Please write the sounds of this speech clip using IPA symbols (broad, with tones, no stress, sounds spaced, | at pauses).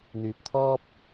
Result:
n̪ yː˨ p̚ t̪ʰ ɔː˥ p̚